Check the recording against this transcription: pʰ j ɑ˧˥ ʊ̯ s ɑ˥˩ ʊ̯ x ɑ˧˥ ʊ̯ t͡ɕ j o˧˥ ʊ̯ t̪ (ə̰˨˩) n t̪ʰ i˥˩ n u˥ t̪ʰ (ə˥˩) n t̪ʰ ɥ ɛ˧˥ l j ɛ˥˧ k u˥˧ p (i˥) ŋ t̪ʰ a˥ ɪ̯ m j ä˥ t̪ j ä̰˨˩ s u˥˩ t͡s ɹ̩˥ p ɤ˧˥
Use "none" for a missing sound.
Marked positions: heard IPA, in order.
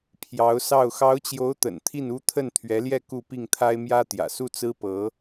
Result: ə̰˨˩, ə˥˩, i˥˩

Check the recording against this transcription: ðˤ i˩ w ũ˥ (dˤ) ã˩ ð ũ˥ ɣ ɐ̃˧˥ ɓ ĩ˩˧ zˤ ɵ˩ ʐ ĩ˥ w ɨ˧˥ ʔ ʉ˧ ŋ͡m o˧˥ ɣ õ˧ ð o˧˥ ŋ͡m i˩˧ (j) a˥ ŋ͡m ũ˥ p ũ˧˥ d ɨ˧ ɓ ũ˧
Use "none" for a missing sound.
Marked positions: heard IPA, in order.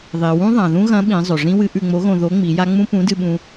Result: ðˤ, j

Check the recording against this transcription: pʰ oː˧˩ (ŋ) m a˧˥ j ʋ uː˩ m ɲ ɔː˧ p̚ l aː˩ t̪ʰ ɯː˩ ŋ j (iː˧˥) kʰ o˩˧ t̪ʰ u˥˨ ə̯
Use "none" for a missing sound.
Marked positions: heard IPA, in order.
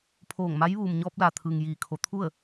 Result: ŋ, iː˩

